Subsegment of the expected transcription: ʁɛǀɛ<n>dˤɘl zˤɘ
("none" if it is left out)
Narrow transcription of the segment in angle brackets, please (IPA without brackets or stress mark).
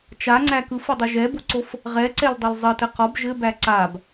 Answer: l